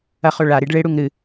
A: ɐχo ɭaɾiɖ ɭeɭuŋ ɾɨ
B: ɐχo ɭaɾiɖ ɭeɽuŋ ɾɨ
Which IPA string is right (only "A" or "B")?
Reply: B